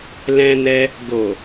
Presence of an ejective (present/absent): absent